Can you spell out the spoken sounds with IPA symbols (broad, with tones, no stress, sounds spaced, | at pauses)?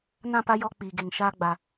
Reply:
n ã˦˨ p a˦ j ɔ˦ k͡p iː˨ ɡ e˨ ŋ ʃ aː˦ ɡ͡b a˨